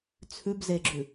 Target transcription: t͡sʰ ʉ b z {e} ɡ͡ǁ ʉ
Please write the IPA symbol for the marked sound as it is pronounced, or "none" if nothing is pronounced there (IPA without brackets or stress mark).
e